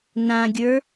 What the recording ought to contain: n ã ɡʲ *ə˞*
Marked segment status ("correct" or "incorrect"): correct